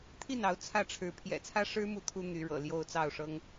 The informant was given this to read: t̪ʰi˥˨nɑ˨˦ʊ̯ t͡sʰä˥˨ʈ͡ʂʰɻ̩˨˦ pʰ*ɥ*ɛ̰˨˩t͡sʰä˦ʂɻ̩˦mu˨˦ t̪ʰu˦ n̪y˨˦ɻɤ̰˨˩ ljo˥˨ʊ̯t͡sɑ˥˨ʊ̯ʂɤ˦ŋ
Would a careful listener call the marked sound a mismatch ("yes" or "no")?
yes